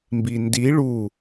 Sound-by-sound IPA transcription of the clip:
m b i n d i ɭ u

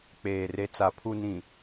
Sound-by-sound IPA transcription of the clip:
k͡p eː˨ r e˨ t͡s a˨ pʰ u˨ n ĩ˨

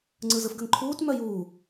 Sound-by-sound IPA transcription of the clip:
ŋ͡ǀ ɯ z ɯ f ɡ ə ŋ ǃʰ uː t m œ j uː

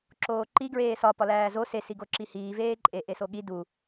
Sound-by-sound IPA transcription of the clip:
ǁ oː ǃ i ɡ ɹ eː s ɒ p ɒ l æː z o s e s i ɡ o ǁ i h iː v eː ǃʼ e ʔ e s o ɠ i d u

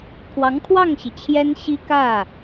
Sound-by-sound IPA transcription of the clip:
kʰ w ɑ˧˥ ŋ kʰ w ɑ˥˩ ŋ ɕ i˩ t͡ɕʰ j ɛ˥ n ɕ i˥ k ä˥˩

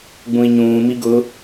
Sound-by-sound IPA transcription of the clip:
ɡ͡b ũ i̯ ɲ ũː m i ɡ ʊ

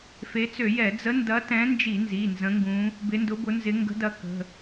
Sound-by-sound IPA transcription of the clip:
f e˨˦ t͡s ø˧˩˧ j ɛ˧˩˧ d͡z ə˨˦ n d ɐ˨˦ t ɛ̃˨˦ n d͡ʒ i˧˩˧ n z i˩˧˩ n z ə̃˨˦ ŋ ɡ ũ˨˦ | b ɪ˨˦ n d ʊ˨˦ b ʊ˨˦ n z ɪ˨˦ ŋ ɡ ə̤˨˦ d ɐ˨˦ k ə̤˩˧˩

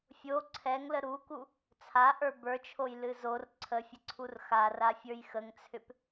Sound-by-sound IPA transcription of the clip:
fʲ o ǀʰ ɛ ŋ l ə ɾ u k u | t͡sʰ a ʔ ə˞ b ə˞ t͡ʃʰ o j l ɨ z o r ǀʰ ə fʲ ə ǀʰ u r x a r a fʲ ə˞ j x ə ŋ t͡sʰ ʏ p

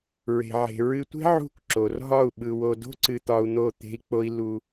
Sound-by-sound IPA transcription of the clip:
ɹ e̤˨ ʕ e̤˨ ɹ ɨ˧ tʷ e̤˦ ʕ ṳ˦˨ k ǁ o˨ r ɦ ɒ˦˨ u̯ ɓ ɯ˧ w o˧ d o̤˦ ǀ ɨ˧ t̪ ɒ˧ u̯ n̪ o˦˨ t̪ e̤˦ i̯ k͡p o˦ i̯ l u˧

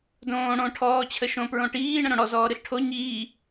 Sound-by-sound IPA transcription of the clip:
d õː ɽ õ ʈʰ ɔː t͡ɕʰ ə ʃ õ p ɹ õ ʈ iː ɳ ə̃ ɾ õ ɽ ɔ z ɔː ɾ ɨ ɬ ʈʰ o ɲ iː

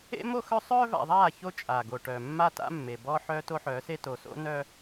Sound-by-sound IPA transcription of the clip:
ḛ˦ m o˦ x œ˦ sˤ œː˦ v a̰˨ ðˤ aː˦˨ ç o˦ t͡ʃʼ aː˨ ɡ o˨ ʈ œː˨ mː a˦ t a̰˦ mː e˨ b ɔː˦ ħ œː˦ t o˦ ħ œː˨˦ s e˦ t o˨ s o̰˦ n œ˦

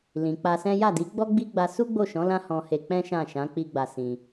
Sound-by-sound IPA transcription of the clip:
l ĩ˨ k͡p a˧ s ɛ̃˦ j a˦˨ d i˨˦ ɡ͡b ɔ˦ ɡ͡b i˦ ɡ͡b a˧ s u˦ ɡ͡b o˦˨ ʃ ɔ̃˨˦ l ã˦ h ɔ̃˧ h e˧ k͡p ɛ̃˦ ʃ ã˦˨ ʃ ã˨˦ k͡p i˦ ɡ͡b a˧ s ĩ˧

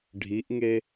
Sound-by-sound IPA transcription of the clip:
ɖʱ i ʔ ŋ e

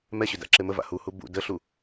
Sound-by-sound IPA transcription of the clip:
m ɛ ɕ ʏ d a̰ ǁ e m ə v a̰ h u h u b ṵ d ə ɬ u

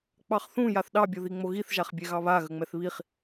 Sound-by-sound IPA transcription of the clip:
k͡p ɑ χ θ ũ j a θ ɗ ɑ bʲ o ð i ŋ͡m o ɣ i θ ʒ a χ bʲ ɛ ɣ ɑ β a ɣ ə ŋ͡m ɛ θ β i χ

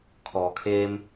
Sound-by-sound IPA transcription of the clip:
kʰ ɔː˩˧ kʰ eː˧ m

